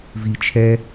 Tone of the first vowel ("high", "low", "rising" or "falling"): low